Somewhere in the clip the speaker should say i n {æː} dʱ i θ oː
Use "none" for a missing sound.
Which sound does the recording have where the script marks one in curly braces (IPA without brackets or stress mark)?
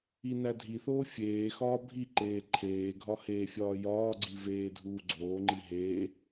æ